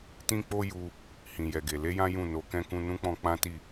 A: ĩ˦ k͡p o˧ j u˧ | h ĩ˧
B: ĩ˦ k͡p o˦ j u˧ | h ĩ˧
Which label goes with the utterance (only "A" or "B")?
B